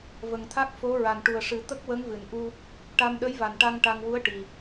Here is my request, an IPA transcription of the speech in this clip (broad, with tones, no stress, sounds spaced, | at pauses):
v ə˨˩ ŋ t̪ʰ a˦˥ k̚ f o˧˥ ɹ a˨˩ n ʈ u˨˩ ə̯ ʂ ɨ˨˩˦ t̪ ə˦˥ k̚ w ə˧˥ ŋ v ɨ˨˩˨ n ʔ u˧ | ʈ a˧ m ɗ ə˧˥ j v a˨˩ n ʈ a˧ ŋ ʈ a˧ ŋ w u˧˥ ə̯ ʈ i˨˩